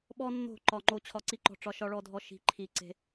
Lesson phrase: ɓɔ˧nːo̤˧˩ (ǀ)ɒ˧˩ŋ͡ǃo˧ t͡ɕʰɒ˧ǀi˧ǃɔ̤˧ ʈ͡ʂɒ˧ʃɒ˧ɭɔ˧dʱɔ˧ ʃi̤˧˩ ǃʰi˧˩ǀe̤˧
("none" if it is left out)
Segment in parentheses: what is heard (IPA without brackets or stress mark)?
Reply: ǃ